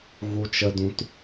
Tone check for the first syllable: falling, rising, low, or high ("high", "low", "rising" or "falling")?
high